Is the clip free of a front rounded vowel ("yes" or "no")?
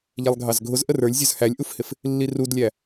yes